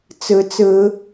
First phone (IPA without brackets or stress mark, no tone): t͡s